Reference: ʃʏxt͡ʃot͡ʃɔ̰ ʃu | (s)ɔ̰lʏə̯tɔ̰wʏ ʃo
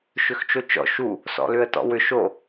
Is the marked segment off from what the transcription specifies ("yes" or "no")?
no